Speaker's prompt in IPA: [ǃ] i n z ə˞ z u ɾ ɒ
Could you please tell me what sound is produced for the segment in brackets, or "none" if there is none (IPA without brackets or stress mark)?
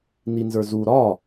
n